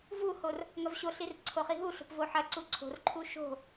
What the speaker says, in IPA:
vuhor | ŋɐvɕoɬir ǀʰoχiɦuɬo̤p voħɐǀu ǀʰo̤rǃʰu ʃo̤

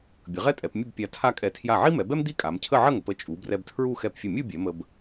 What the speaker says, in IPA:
bʲə˩˧ʁɛ˥tʼɛ˩˧pmʲə˥˧b pʲa˧tʰa˥˧kʼɛ˧˩ tʰja˧˩ʕi˥mɛ˩˧bɛ˥m d̪i˥kʼa˩˧mcʰə˥˧ ʕə˥˧ŋə˩˧p ə˥˧ t͡ʃʼu˩˧brɛ˧b tʰɹu˥˧ xɛ˧˩pfʲə˧˩mʲu˥˧bʲɛ˩˧ mə˧b

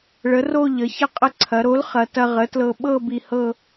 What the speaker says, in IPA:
ɭə˩˥ro˥˧ʎə˩˧çɐ˥ qʼə˧ǀʰɐ˩˧ɾo˩˥lχɐ˩˧ tɐ˧ʁə˩˥tlɤ˧ ɓɤ˥˧ bi˧hɤ˥˧

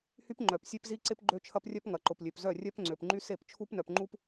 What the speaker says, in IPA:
hy˦pŋ͡ǃœ˨p sʲe˦pzi˦ǀɪ˦p ɡ͡ǃø˦t͡ʃʰɐ˦prʲœ˦p ŋɐ˨ǃʊ˨p lʲø˨pzœ˦˨rʲœ˦p ŋ͡ǀø˨pŋ͡ǃy˦ se˦˨pt͡ʃʰu˦pnœ˨p ŋ͡ǃu˦p

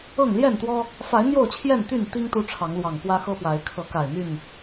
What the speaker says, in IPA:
ɤ˥˨ŋ ljɛ˥˨nt̪wɔ˦ | fa˨˦ɪ̯ n̪jo˥˨ʊ̯t͡ɕʰjɛ˥˨nt̪y˥˨nt̪i˦ŋ t̪u˦ʈ͡ʂʰɑ˨˦ŋ lwɑ˨˩ŋpwä˦xɤ˦pwa˨˦ɪ̯ kʰɤ˨˦ka˨˩ɪ̯n̪y˥˨n

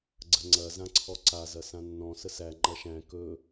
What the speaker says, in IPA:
ɡ͡ǀəŋ͡ǀɐ zãǀʰɔǀa zɐsãnːɔ̃ səsæ ŋ͡ǃɐʃæ̃ kɵ

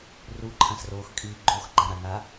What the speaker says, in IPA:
ruǃʰãsroːxkʼiː ɡ͡ǃoxɡ͡ǃãɾaŋa

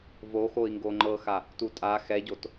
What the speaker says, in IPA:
voxoi̯ŋɡo ŋ͡ǃɤxa | tutʼa xɛɟot

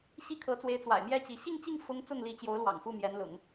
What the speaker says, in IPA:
ɕi˥˩kʰɤ˧˥t͡swe˧˥ɪ̯ t͡swa̰˨˩ɪ̯mjɛ˥˩t͡ɕi˧˥ ɕi˥˧ŋt͡ɕi˥˩ŋ fʊ˥ŋt͡sʊ˥˩ŋli˧˥t͡ɕjo˧˥ʊ̯ lwɑ̰˨˩ŋfu˥˩mjɛ˧˥nlʊ̰˨˩˦ŋ

